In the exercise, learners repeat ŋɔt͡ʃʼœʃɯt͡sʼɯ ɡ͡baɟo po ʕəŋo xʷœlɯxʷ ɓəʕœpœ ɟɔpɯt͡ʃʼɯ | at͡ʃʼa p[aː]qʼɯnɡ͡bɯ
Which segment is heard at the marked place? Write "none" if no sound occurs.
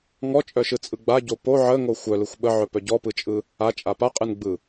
a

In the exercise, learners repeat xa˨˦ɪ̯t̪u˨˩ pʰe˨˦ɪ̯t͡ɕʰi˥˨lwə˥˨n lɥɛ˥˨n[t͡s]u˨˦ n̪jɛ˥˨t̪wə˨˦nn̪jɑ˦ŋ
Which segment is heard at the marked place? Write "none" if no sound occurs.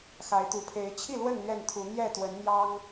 t̪ʰ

